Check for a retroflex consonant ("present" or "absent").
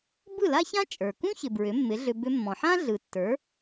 absent